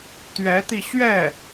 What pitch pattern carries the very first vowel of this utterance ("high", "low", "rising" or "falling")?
rising